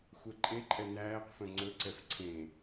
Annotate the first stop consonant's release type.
click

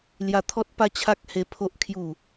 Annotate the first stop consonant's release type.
aspirated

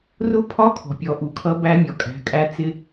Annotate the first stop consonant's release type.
aspirated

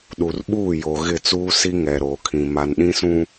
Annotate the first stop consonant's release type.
implosive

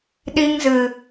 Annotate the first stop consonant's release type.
implosive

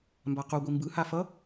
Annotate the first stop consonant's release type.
plain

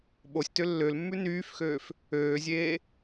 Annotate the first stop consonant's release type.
implosive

